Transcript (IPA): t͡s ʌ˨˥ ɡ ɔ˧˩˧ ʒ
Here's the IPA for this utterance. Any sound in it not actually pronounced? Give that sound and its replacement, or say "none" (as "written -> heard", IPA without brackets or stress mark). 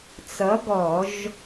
none